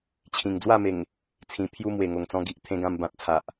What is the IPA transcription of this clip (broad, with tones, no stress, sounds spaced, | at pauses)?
t͡ɕʰ ĩ˨˩ ŋ d͡z w a˥˧ m e˨˩ ŋ | t͡sʰ ĩ˨˩ pʰ j u˦ m w e˨˩ ŋ o˨˩ ŋ t͡s ɔ̃˧ ɡ i˨ ʔ t̪ʰ ẽ˧ ɡ ã˧ m b ã˨ t̚ t͡sʰ a˨ ʔ